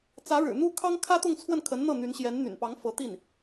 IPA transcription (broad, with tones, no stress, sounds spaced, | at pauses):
t͡s ä˧˥ ɻ ɻ̩˨˩ n̪ u˥ kʰ ɑ˥ ŋ kʰ ä˥ t̪ ʊ˥˧ ŋ t͡sʰ w ə˥˩ n kʰ ə˧˥ n n̪ ɤ˥˩ n̪ y˧˥ n ɕ j ɛ˧˥ n n̪ y̰˨˩ n p ɑ˧˥ ŋ f ɤ˧˥ t̪ i˥˩ n